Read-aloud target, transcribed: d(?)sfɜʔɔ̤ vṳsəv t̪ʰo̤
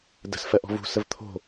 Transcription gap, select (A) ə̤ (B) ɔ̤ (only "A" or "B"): A